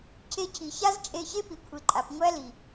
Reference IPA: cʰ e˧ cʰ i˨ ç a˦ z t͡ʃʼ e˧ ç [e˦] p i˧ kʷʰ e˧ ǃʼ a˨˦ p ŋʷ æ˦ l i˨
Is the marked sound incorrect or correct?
correct